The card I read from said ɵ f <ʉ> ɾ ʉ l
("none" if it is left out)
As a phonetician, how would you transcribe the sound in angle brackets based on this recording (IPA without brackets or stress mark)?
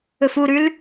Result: u